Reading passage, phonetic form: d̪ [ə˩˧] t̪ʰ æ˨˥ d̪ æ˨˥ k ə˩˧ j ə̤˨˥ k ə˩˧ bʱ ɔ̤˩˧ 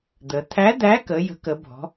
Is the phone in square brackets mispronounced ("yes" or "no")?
no